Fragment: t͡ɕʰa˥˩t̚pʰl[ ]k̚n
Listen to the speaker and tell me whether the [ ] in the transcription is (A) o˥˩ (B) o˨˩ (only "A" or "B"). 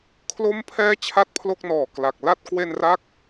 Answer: A